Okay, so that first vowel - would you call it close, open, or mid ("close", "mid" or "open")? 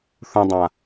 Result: close